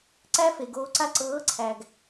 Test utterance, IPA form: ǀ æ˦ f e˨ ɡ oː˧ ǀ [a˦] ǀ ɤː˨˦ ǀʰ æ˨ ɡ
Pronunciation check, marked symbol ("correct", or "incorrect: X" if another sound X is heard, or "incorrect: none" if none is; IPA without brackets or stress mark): correct